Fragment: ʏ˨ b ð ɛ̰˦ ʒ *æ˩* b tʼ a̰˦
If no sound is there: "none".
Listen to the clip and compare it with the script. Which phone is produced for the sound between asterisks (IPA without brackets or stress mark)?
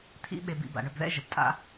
ə˩